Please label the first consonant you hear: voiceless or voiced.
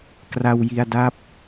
voiceless